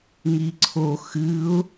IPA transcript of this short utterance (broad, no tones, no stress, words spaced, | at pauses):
ŋiǀʰo xɨʊ̯